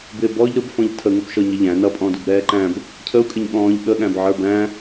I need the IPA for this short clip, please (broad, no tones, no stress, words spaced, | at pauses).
bɪ bɔʎ ɾʊb fɔ̃ʎtʰə ŋʊbʃɔɲəʎæ̃ nʌpʼɔ̃dub ɾɛːǃæ̃b | cʰəu̯kʼɪɲ ɠɔ̃ːʎɠəɠæ̃bʕə˞ bæ̃